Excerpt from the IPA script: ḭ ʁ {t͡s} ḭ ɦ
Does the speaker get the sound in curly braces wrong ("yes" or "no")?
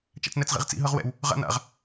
no